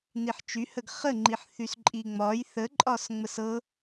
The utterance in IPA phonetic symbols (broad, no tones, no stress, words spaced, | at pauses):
niħt͡ʃyhəɡ χəŋ͡ǃiħ θysǃʼiŋ͡mɒj θəǃʼɒs ŋ͡məsɤ